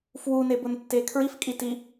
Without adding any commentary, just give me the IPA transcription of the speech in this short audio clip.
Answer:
fwunebʊntːe kʰɹifkʼiti

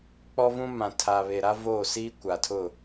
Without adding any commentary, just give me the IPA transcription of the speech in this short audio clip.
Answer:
k͡pɔ˦vũ˦ mã˨ tʰa˨βe˨ɾa˦ voː˦˨siː˦ kʷa˨tʰʊ˦˨

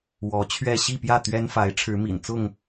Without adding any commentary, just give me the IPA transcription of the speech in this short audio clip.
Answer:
wɔ˨˦t͡ɕʰɥɛ˥˨ ɕi˥˨pjä˥˨ t̪ɥɛ˦nfa˨˦ɪ̯ ʈ͡ʂʰɻ̩˨˦mḭ˨˩nt͡sʊ˥˨ŋ

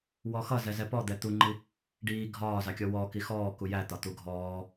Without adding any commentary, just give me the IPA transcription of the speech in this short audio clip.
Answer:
wɔxʌ zɛzɛpɔd̪ɛ t̪uŋ͡ǃi | ɖiː ɡʱɒːzɑkʲɔ wɔ kixɔː kujæt̪ɒ t̪uɡʱɔː

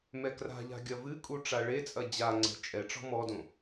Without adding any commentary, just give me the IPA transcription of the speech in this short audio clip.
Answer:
mɛkra̤ʎa̤ ɡʲɐvɨkʼu ʈ͡ʂaɭet͡sʼɐ d͡ʑaŋ͡ǀɛ̤ t͡ʃʼɛʈ͡ʂɔ̤ mɔdõ

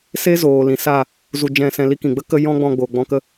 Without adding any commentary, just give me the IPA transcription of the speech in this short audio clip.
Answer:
se˦zoː˨lĩ˨sa˦˨ | zu˧ d͡ʒɛ̃˦˨sɛ̃˧li˦kĩ˨ ɡ͡bə˦kə˧ jɔ̃˦ɡ͡bɔ̃˧ ɡ͡boː˨ɡ͡bɔ̃˧kə˦

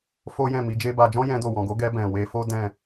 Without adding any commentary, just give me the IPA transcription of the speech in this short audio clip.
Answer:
fo˦jɛ̃˦˨mi˨˦d͡ʒe˦ ba˧ d͡ʒɔ̃˦jɛ̃˧do˨ wɔ̃˨ɡo˨˦ɡɛ˧ bɛ̃˨we˧fo˦ dɛ̃˦˨

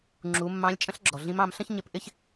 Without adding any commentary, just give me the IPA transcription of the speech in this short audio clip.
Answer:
ŋ͡ǁu˩˧ mːɑ̃˧˥lʲt͡ʃʼə̃˥ɬɡ͡ǁɔ˩ɮĩ˧˥m ɑ̃˩˧mɬə̃˥ç ɲɪ˧˥pʔɪ˥ç

